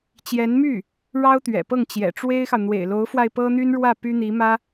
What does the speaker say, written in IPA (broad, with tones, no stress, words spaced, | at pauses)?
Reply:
t͡ɕjɛ˧˥nmy˥˩ | ɻɑ˥ʊ̯t̪ɥɛ̰˨˩pɤ˥˩ŋ t͡ɕjɛ̰˨˩ʈ͡ʂwe˥ɪ̯xɑ˨ʊ̯ n̪wḛ˨˩ɪ̯lo˧˥ʊ̯fwa˧ɪ̯ pɤ˥n̪y˥nɻwä˥˩ py˥n̪i˧˥mä˥